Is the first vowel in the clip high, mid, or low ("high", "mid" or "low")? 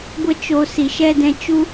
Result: mid